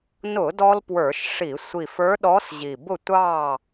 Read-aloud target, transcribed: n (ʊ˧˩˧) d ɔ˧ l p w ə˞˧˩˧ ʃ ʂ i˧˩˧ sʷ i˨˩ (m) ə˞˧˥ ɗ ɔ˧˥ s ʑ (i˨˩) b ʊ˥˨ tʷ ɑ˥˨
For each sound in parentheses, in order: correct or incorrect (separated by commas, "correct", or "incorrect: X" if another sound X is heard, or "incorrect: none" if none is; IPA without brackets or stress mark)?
correct, incorrect: f, correct